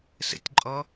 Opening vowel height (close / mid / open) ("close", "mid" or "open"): mid